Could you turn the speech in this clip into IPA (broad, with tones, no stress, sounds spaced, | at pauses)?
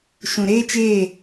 ʃ ũ˨ ɾ eː˦ t͡ʃ eː˦˨